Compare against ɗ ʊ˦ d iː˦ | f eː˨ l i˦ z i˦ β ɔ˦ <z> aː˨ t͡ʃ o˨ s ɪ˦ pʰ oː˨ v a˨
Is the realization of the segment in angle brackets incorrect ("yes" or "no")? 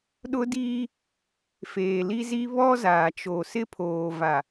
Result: no